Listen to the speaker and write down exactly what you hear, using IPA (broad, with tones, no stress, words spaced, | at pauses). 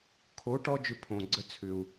kʰo˩˥ ʈɔ˥d͡ʒʏ˧pʰõ˩ɡ͡ǀə˧ t͡sʰʏ˩u̯